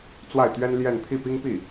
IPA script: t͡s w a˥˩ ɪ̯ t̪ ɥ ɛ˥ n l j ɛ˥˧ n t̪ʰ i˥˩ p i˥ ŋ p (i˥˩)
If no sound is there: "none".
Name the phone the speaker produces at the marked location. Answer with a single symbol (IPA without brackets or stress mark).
i˥˩